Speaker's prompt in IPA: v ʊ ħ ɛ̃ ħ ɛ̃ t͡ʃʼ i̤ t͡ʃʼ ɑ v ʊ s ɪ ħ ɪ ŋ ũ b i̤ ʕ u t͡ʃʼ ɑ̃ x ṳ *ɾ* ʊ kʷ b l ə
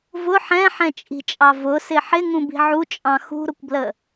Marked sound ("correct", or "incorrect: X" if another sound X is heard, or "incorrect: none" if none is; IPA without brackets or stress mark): correct